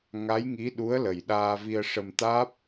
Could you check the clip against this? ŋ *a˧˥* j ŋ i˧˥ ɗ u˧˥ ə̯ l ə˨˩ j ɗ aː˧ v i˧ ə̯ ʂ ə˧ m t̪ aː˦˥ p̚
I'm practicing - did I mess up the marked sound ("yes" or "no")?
no